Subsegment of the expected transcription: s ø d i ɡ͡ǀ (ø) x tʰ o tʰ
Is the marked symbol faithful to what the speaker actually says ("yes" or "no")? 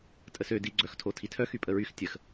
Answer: no